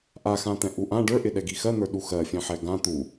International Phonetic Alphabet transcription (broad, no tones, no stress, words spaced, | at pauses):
ʔaxãt̪ɛ̃ ʔuʔã ɖə˞ʔɪ ɗɛɡixɜn̪ə˞ ɗuxɜfʲɛ̃ħɛ ɡã t̪u